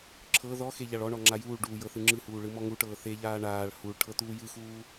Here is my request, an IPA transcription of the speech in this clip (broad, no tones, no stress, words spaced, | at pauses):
ǁʰɤ ðɔ xeʎaɭɔɳɔ ŋ͡ǁajuːɭɖuː jɤθɯŋ͡ǁɯhuː ɭɯmɔŋuʈɤː θeʎaː ɳaːɭ huɭ ʈʰɤt̪uːjɯxuː